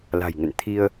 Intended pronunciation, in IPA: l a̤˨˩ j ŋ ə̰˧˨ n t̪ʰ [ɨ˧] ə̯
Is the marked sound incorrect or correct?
incorrect